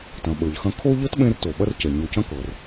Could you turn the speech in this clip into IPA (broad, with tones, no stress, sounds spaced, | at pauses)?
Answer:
t ɐ̃˩ ɓ ə˞˩ ʎ x ɐ̃˦ kʰ o˥ ʎ ɤ˥ t ɓ ẽ˦ r t o˩ ɓ ɐ˦ r c ɛ˩ ɲ o˨ c ɐ̃˦ k ɤ˩ r